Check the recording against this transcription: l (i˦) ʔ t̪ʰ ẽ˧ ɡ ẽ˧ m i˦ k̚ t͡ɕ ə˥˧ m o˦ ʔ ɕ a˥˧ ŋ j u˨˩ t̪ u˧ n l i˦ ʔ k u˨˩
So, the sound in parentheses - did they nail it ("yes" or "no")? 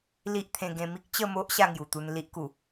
yes